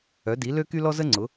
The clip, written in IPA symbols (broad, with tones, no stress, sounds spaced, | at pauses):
œ˩˥ d i˩˥ l ø˥ k y˥ l ɔ˥ z ə˥ ŋ͡ǀ ʊ˩˥